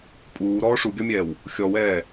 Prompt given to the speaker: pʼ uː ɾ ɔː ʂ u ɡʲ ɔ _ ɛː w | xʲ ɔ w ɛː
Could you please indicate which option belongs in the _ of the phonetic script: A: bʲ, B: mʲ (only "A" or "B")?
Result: B